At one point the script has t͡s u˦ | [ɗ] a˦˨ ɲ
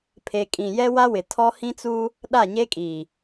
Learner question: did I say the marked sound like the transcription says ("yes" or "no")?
yes